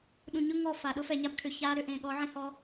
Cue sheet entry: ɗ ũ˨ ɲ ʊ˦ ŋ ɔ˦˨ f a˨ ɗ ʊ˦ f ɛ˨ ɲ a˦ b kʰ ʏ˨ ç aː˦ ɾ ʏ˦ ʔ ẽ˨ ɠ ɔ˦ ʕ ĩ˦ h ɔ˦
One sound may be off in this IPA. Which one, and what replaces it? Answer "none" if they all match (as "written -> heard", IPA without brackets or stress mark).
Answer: none